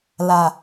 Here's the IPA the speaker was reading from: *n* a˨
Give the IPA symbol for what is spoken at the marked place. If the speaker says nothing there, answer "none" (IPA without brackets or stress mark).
l